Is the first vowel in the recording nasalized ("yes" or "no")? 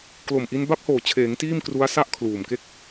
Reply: no